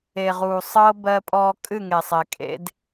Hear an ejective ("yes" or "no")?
yes